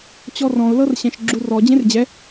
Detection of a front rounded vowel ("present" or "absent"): absent